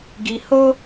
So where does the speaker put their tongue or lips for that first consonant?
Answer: velum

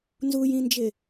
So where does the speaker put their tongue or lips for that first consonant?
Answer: tongue tip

